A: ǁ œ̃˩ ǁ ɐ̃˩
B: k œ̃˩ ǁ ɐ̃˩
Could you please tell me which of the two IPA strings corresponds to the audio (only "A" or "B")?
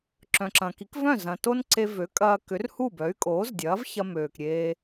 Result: A